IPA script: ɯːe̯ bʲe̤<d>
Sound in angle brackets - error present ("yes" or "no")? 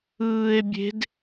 no